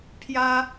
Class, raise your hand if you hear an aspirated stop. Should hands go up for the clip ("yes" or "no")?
yes